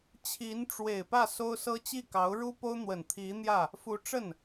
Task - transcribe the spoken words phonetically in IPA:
t͡ɕʰ i˧˥ n ʈ͡ʂ w e˨˩ ɪ̯ p ä˥˩ s o˥ ʊ̯ s ɤ˥ t͡ɕ i˥˩ k ɑ˧˥ ʊ̯ ɻ u˥ p o˥ ʊ̯ n̪ w ə˨˩ n t̪ʰ i˧˥ n̪ j ä˥˩ | f u˧˥ ʈ͡ʂ ə˥˩ n

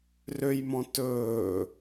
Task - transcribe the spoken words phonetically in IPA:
r ø j m ɔ̃ t ɵː

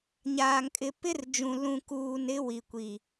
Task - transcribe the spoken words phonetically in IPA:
ɲ aː˨ ŋ kʼ ɪ˨ p ɪ˦ r d͡ʒ ũ˨ l ũ˨ k uː˨ n ɪ˦ w i˨ kʷ i˨

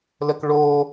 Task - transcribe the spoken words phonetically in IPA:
l ə k ɭ o

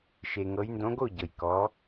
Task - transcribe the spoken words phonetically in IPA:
ʃ e˩ ŋ ɤ˩˧ j n d õ˨˥ ɡ o˥˩ ɟ ɤ˩ j k ɔ˩˧

